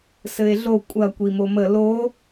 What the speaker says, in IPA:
sɘe̯ɮo kʷʼɐ kʷimomə lo

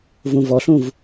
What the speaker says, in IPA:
vũvɔɬũv

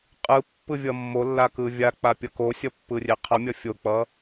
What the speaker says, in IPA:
qʼɯ pːɯvʲʌmːolːa kɯvʲak͡pa pʲʌkosʲʌ pːɯrʲeqʰʌmʲʌ fʲok͡pʌ

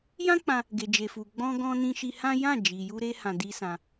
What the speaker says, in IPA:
jã˦k͡pã˧ | ɡe˨d͡ʒe˨fu˨ ɡ͡bɔ̃˧ɡɔ̃˧ nĩ˧ʃi˧hã˦ jã˦˨d͡ʒi˨ju˧ɾe˧ hã˧di˦sã˧

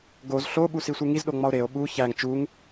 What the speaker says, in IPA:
ɡoz ɬoɓusisʷe ŋizɗoŋ͡mɒo̯ ɾeo̯ ɓu çæŋ t͡ʃuŋ

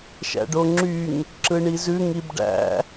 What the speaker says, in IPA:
ʃæ̰ɖoŋ͡ǁyŋ | ǁɯɳizʉ ŋibɖæ̰

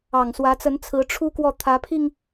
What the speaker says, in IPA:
ɑ˨˩ŋswä˧˥t͡sə˧˥n t͡sʰɹ̩˧˥ʈ͡ʂʰu˥kwɔ˥˩ t̪ʰä˧˥pʰi˧ŋ

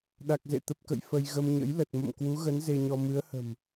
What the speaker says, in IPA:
ɗa˨˩k̚zḛ˧˨ t̪ə˨˩p̚kə̰˧˨j fə˧j ɣə˧m ɲə̰˧˥jlə˨˩t̚ mə̰˧˨m kwu˨˦ɣə˨˦n ze˧ɲɔ˧ mɨ˨˦ə̯hə̤˨˩m

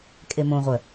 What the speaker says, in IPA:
kʼemõʁʷœ

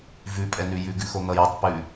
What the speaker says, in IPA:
vʉpʼɛnʉ jʉɡʉxo n̪ʌjɘtˤ pʉ

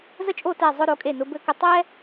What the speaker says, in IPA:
zə˥˧t͡ʃʼo˥˧tɛ˧˩ zˤʊ˧ɾo˩˧kʼe˧˩ nʊ˧bɘ˥˧ kɘ˧ tˤɛ˥

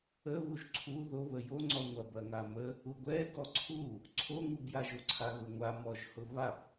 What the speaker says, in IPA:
ə βuʒǀʰu ðoβə jo ŋ͡ǀɔŋʷɐb ɐŋamə | uɡʷɛ ɡɔǀʰu | ǀʰoŋubjaʒ oǀʰaɣʊŋʷa mɔʒhʊβab

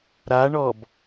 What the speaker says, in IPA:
ɾaɳɔb

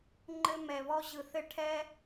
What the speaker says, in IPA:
ŋ͡ǃɘ˧mɛ˨βɔ˧ ʑɯ˨ θɘ˧ʈʰɛ˧

